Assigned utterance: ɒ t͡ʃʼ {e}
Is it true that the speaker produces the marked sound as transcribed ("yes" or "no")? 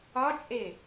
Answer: yes